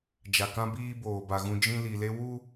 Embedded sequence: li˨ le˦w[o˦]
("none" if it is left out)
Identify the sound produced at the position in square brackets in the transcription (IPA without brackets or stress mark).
u˦